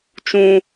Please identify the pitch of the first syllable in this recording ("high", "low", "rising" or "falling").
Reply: high